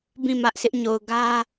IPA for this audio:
b ĩ˦˨ m ä˦ ʔ sʰ ɪ˦ ʔ ɲ o˨ ʊ̯ ɡ ä˦

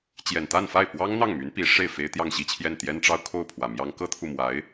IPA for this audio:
t͡ɕ j ɛ˨˩ n t̪ a˥˧ n f a˥˩ ɪ̯ p w ɑ˥ ŋ n̪ ɑ˥˩ ŋ m y˧˥ n p i˧˥ ʂ e˥˩ ɪ̯ f e˥ ɪ̯ t̪ j ɑ˥˧ ŋ ɕ i˥˧ t͡ɕʰ j ɛ˥˩ n t̪ j ɛ˥ n ʈ͡ʂ ɑ˥ ʊ̯ kʰ o˥˩ ʊ̯ pʰ w ä˨˩ m j ɑ˥ ŋ k ɤ˥ t̪ʰ u˨ m w a˧˥ ɪ̯

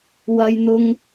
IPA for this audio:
w ɐ˥ j n̪ ʊ˥ ŋ

